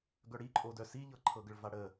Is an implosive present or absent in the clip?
absent